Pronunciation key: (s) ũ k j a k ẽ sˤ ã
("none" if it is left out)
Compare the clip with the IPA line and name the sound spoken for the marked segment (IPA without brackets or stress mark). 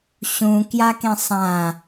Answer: ɕ